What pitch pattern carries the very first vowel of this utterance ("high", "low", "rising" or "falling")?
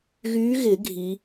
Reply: rising